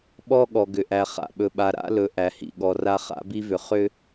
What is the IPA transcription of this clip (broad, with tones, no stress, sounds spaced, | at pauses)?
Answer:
ɓ ɔ˦ ɠ ɔ˨ ɡ ʏ˨ ʔ æ˨ χ a̰˨ ɓ ɵ˨ ɓ a˨ ɾ a̰˦ l ɵ˨ ʔ æ˨ h ḭ˨ ɠ ɔ˨ r a˦ χ a̰˦ b i˦ v ʏ˨ χ ʏ˦